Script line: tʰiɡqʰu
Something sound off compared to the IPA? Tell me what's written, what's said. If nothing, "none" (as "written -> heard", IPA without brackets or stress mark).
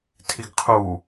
none